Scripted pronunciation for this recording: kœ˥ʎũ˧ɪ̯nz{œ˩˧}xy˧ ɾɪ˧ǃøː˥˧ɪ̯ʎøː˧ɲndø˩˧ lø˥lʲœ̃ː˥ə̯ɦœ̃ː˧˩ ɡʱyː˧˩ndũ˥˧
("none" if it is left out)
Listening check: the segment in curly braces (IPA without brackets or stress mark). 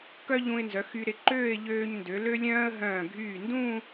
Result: œ˩˧